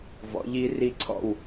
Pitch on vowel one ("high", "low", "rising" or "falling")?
rising